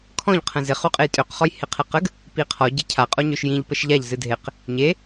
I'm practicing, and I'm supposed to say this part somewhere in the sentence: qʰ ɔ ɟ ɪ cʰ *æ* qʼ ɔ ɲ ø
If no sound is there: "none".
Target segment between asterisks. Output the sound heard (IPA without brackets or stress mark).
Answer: a